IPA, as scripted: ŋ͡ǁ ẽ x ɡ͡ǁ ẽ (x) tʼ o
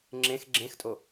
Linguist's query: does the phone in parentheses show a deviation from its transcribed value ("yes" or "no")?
no